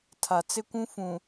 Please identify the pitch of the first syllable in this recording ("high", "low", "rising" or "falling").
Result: low